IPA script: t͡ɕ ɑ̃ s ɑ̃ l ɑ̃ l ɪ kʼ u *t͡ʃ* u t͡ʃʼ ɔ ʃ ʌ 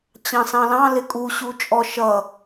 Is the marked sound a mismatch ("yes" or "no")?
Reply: yes